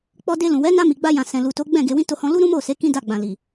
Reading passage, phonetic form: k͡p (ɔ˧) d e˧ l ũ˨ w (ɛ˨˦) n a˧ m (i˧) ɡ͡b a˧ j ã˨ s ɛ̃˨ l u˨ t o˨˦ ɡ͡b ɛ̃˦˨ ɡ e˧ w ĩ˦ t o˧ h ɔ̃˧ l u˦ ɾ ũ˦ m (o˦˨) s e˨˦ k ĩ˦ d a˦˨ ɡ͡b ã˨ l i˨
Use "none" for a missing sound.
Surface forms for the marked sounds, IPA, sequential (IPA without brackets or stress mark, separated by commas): ɔ˧, ɛ˨˦, i˨, o˦˨